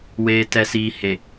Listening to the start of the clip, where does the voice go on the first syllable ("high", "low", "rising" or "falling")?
low